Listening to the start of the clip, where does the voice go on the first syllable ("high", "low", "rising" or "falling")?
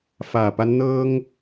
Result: low